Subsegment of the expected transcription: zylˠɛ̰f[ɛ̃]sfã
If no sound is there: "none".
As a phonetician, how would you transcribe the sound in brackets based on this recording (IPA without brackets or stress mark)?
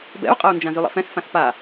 ɛ̃